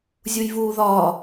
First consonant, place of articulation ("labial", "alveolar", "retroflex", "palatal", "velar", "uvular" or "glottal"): alveolar